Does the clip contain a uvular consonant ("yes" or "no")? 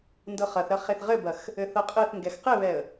yes